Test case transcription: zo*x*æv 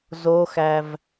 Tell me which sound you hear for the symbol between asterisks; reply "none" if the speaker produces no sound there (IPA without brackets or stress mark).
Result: x